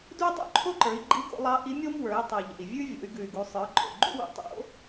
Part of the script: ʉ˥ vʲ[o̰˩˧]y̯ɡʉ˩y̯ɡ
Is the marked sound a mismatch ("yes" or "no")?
no